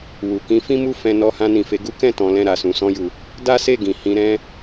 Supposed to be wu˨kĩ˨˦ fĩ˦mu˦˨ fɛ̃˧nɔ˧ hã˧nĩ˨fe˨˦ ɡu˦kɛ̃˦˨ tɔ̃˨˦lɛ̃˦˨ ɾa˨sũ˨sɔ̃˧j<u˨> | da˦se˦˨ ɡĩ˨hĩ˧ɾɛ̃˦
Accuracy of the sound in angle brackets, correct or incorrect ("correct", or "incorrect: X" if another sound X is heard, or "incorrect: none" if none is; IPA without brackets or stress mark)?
correct